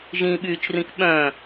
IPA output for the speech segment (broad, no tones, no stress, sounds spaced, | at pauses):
ʒ ĩ ɓ yː t͡ʃ r ĩ k ɓ œ̃